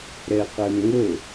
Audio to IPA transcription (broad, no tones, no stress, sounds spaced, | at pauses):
ɾ ɛ q ɛ m ŋ ɵ